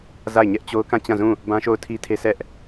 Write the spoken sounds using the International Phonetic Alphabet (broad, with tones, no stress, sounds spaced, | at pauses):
z a˦˨ ɪ̯ ɲ ɛ˦ ʔ t͡ɕ o˦ ʊ̯ k ã˦˨ t͡ɕ ã˦˨ z ũ˦˨ | b ã˦ ʃ o˦˨ ʊ̯ tʰ i˦ tʰ e˦ s ɛ˦ ʔ